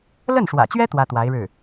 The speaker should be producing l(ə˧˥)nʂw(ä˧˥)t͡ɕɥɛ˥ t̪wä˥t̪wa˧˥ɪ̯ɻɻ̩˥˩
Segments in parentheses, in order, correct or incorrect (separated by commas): incorrect, incorrect